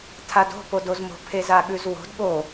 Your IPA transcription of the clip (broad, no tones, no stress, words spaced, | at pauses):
tʰado̤ podozmo̤ pʰezaɠʉzwo̤d ɠo